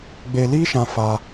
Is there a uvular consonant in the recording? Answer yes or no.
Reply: no